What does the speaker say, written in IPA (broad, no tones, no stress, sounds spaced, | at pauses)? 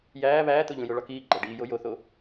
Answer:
j æː β æː t̪ o ʎ ũ j o ɭ ɒ k iː ɡ͡ǃ æ ɖ iː j o j o θ o